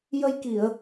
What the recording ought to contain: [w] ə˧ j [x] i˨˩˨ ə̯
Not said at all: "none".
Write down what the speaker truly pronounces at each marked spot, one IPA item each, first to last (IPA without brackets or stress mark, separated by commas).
j, k